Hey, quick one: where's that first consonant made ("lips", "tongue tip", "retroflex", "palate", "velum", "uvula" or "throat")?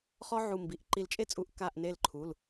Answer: uvula